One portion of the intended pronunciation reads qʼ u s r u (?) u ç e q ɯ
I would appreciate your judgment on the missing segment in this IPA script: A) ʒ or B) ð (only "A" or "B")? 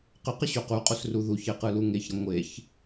B